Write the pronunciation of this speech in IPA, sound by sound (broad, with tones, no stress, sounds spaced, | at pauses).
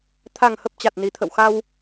t̪ʰ a˨˩ ŋ h ə˨˩ p̚ t͡ɕ a˨˩ t̚ n i˨˩ t̪ʰ ə̰˧˨ w x a˧ w